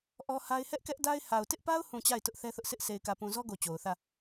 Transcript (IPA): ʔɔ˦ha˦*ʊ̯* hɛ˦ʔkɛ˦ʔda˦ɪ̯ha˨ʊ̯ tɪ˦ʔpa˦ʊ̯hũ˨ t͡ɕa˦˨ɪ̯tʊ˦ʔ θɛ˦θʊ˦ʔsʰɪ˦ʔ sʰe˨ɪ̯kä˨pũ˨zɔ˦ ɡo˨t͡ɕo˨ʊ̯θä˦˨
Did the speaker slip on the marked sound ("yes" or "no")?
yes